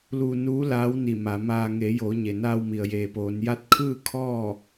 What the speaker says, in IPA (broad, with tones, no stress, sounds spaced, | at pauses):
l uː˧ n uː˧˥ l aː˧˥ w n i˧˩ m a˩˧ m aː˧ ŋ e˩˧ j oː˩˧ ɲ e˩ n aː˧ w m i˩ ə̯ j eː˩ p oː˩˧ n j a˧˥ t̚ kʰ ɯː˥˨ kʰ ɔː˥˨